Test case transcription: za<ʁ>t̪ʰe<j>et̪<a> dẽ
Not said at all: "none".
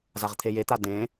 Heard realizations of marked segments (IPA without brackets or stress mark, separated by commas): ʁ, j, a